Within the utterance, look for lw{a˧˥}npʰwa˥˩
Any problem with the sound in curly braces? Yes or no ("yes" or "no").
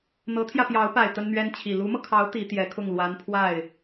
no